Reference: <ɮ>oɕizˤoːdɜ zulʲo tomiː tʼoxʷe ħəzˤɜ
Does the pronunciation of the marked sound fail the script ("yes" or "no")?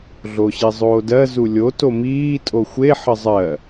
no